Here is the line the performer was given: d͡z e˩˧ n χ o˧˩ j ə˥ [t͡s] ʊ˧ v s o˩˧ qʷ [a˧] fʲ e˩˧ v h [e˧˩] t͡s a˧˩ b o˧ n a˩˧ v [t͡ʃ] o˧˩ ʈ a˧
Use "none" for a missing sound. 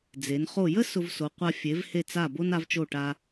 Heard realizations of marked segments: s, a˧, e˧˩, t͡ʃ

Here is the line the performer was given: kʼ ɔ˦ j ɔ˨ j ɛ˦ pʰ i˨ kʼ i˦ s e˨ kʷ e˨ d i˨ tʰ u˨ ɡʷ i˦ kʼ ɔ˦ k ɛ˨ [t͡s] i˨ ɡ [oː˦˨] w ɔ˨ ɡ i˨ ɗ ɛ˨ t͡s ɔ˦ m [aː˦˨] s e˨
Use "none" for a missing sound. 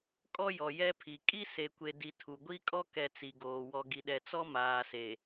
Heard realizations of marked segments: t͡s, oː˨, aː˨

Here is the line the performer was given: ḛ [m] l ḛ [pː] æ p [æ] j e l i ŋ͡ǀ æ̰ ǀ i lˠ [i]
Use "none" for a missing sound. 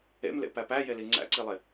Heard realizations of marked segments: m, p, æ, e

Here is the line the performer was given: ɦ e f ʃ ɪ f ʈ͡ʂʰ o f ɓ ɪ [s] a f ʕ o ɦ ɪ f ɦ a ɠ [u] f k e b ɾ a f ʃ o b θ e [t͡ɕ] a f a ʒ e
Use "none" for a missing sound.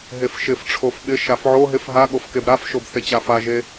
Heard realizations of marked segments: ʃ, o, t͡ɕ

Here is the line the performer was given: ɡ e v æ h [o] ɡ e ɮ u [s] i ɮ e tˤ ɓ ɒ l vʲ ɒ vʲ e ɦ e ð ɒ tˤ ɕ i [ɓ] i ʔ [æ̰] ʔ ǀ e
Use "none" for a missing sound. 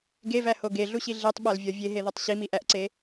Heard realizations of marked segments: o, ɕ, m, æ

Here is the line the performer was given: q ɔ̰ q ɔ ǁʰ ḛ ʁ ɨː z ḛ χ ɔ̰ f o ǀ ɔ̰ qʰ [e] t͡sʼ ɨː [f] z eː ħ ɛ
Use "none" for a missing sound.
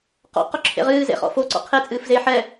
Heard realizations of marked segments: e, f

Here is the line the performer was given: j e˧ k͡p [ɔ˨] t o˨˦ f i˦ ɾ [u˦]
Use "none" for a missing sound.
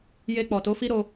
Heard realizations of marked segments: ɔ˨, o˦

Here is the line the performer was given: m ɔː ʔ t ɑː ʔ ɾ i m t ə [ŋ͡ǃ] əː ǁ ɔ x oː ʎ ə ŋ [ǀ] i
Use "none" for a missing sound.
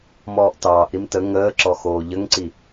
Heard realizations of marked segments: ŋ, ǀ

